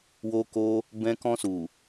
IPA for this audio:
w o˧ k o˧ | b ɛ̃˧ k ɔ̃˧ s u˨

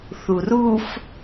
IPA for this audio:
θ u r u f

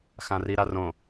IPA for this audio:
x ã r i ɾ a r õ

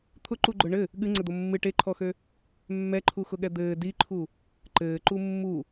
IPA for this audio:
t̪ʰ ʊ ǃ u ɡ͡ǃ ʊ ɳ ɘ | ɠ ɨ ŋ͡ǀ ɘ d̪ o mː ɨ ʈ e ǃʰ ɔ x ø | mː ɛ ǃʰ u x ʊ ɠ ɛ d̪ ɘː d i ǃʰ u | ǃ ɘː ǃ u mː u

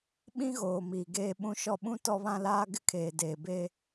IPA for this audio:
ɓ ĩ˦ ɣ oː˨ m iː˨ ɡ eː˦ ɓ ũ˦ ʃ ɔ˦ ɓ ũ˦ t ɔ˦ β ã˦ l aː˦ ɡ ɪ˦ kʰ eː˨ d eː˨ b eː˦

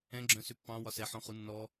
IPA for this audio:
ɛ̃ ɡ͡ǁ œ̃ s ʏ pː ɑ̃ w ɒ s ɛ ħ ɔ̃ χ u nː ɔ

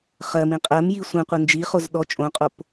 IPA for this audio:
χ ɜ m ĩ qʼ ɜ m j i sʷ ĩ qʷ ɨ n d͡ʒ i χ o z ɗ ɔ t͡ʃʼ õ qʼ o p

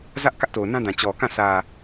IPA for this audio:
z ä˦ ʔ k ä˦ ʔ t o˨ ʊ̯ n ã˦ d ã˨ t͡ɕ ɔ˨ k ã˦˨ sʰ ä˨

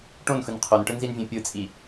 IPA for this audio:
ʈ õ n x ɯ n qʰ o n ʈ ɯ n z i n vʲ ɛ̃ pʲ ɯ t͡sʼ i

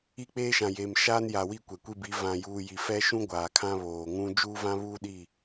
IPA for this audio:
i˦˨ k͡p eː˦ ʃ ã˨ j eː˨ m ʃ aː˦ n j a˨ w i˦˨ kʷ ɛ˨ kʷ i˦ b i˨˦ v ã˨ j uː˨ j i˨ f ɛ˦ ʃ ũ˦ ɡʷ aː˨ kʰ ã˦ β oː˨ ŋ ũ˦ d͡ʒ uː˦ v ã˦ β uː˦ ɗ i˦˨

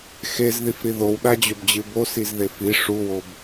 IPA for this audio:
x e z ð i f ɾ i ð o w ɗ a d͡ʑ ɵ b d͡ʑ ɨ b o s i z ð e f i ʂ u w o b

